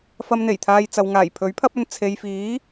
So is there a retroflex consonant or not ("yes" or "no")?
no